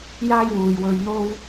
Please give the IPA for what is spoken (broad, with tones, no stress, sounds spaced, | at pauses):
j aː˥ j w uː˨ j w ɵ˧ ɥ n̪ o˥ w